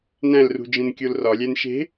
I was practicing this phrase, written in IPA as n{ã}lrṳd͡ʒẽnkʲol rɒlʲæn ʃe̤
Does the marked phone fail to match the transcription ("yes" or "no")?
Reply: yes